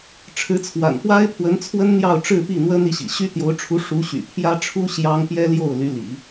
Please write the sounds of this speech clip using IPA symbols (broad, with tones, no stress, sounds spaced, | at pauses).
ʈ͡ʂʰ ɻ̩˧˥ t͡sʰ w a̰˨˩ n p w a˥ ɪ̯ pʰ w ə˧˥ n t͡sʰ w ə˥ n n̪ j ɑ˥˧ ʊ̯ ʈ͡ʂ ɻ̩˥˧ p i˥˩ n̪ w ə˥ n i˧˥ ɕ ḭ˨˩ ɕ y˥ t̪ j o˧˥ ʊ̯ ʈ͡ʂʰ u˧˥ ʂ u˧˥ ɕ y̰˨˩ pʰ j ä˥ ʈ͡ʂʰ u˥ ɕ j ɑ˥ ŋ p j ɛ˥ l j o˥˩ ʊ̯ l y˧˥ l ḭ˨˩˦